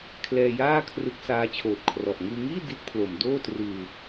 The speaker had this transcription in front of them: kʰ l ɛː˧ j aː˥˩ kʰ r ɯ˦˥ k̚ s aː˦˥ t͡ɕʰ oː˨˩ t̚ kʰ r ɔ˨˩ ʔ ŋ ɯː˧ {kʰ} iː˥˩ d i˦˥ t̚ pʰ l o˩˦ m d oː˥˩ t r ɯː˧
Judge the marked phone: incorrect: ŋ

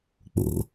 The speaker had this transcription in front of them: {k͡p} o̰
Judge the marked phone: correct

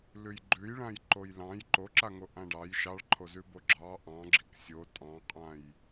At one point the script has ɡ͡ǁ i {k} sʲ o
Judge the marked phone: correct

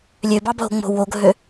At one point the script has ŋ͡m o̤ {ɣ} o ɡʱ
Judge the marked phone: incorrect: w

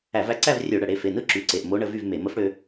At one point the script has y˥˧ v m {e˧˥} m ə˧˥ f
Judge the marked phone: incorrect: e˧˩˧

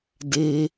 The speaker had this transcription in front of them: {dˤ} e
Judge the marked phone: incorrect: d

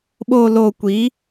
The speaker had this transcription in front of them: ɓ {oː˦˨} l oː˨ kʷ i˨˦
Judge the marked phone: incorrect: oː˨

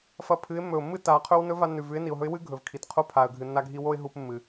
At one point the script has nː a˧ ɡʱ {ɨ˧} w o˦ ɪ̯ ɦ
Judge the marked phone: incorrect: i˧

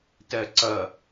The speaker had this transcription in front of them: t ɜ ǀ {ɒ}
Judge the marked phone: incorrect: ʌ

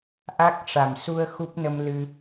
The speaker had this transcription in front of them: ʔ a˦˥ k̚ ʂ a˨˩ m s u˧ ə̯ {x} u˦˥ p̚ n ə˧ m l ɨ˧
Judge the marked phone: correct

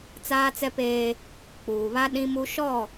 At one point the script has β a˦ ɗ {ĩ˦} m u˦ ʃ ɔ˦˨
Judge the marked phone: correct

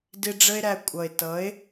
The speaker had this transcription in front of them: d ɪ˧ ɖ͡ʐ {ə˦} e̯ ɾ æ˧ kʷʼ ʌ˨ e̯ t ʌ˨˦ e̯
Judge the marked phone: correct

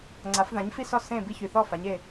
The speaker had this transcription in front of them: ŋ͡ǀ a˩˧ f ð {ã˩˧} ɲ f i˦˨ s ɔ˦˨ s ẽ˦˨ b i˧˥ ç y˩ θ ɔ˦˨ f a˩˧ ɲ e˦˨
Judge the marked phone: correct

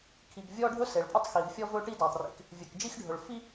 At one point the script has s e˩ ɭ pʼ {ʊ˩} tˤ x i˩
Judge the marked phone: incorrect: ʊ˥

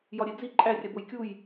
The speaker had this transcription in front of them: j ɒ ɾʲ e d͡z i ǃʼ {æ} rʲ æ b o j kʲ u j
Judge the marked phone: correct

